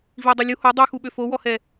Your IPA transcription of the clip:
vidˤu lʲu ho dˤyxuɓø fowɔhɛ

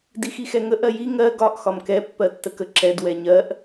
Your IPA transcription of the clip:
dixixɛŋə ʔɜji ŋɜ ɡɒʔ xɒmkɛ pːɜtːəkə ǁɛd wɛɲɜʔ

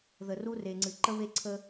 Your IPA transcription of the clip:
ðə˨ru˦re˨ŋ͡ǀɨ˨ ǃə˦βe˦ǀʰə˦

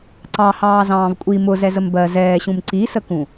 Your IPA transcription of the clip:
ǀɑhɑː zɑ̃ːvkʷʼi mʊ zɛzəmbɜ zɛːɕũm ǀisəkũ

